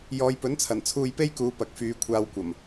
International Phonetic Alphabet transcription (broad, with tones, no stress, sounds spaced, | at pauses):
j ɔː˨˧ j p ɵ˨˥ n t͡sʰ ɐ˨˩ n t͡sʰ uː˧ j p e˥ j k uː˨˧ p ɐ˨ k̚ f yː˨˧ kʷʰ aː˧ w kʷ ɐ˨˩ m